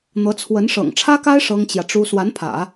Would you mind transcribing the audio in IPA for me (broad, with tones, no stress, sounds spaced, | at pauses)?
n̪ ɤ˧˥ t͡sʰ w ə˧˥ n ʂ ɤ̰˨˩ ŋ ʈ͡ʂʰ ä˥ k a˥ ɪ̯ ʂ ɤ˥ ŋ t͡ɕ j ä˨ ʈ͡ʂ u˥ s w a˧˥ n pʰ ä̰˨˩˦